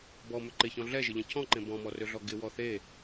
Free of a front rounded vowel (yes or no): no